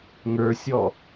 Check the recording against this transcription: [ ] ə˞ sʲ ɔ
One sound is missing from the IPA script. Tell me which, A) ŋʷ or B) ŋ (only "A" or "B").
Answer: B